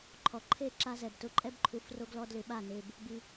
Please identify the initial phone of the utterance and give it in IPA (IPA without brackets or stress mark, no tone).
ǃʰ